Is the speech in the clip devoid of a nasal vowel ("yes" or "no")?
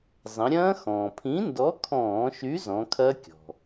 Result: no